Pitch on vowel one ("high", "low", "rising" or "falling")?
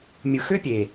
low